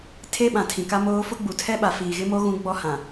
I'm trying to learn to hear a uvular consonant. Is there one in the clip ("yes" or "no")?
no